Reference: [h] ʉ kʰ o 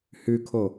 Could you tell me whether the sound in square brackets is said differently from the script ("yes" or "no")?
no